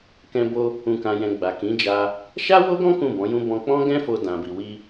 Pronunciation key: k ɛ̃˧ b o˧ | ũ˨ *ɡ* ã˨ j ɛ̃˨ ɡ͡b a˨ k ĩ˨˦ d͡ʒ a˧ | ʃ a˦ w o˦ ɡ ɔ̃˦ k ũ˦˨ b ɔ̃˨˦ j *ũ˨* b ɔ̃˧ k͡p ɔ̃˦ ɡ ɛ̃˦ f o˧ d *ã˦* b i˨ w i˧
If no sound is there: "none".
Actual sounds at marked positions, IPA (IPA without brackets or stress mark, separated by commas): k, ũ˦, ã˨